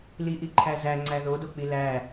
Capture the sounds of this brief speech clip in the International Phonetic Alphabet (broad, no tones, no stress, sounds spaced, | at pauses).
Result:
l i ʔ i ǃʰ æ z æ ŋ͡ǀ æ ð o d o k͡p i l æ